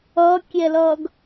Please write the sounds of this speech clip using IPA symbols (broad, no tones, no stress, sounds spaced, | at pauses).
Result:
ʌ kʲ ɛ l ʌː ɡ